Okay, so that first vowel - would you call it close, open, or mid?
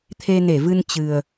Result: mid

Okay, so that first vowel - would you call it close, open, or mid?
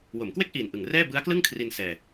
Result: mid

